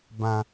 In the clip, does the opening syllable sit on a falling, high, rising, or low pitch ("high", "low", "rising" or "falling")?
low